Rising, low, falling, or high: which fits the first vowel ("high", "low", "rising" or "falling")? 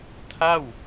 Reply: falling